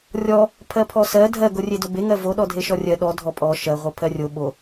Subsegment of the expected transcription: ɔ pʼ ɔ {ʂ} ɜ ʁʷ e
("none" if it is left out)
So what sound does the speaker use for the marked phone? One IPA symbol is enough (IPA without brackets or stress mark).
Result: ʃ